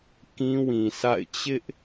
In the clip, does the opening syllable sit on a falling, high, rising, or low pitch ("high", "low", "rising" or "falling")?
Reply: high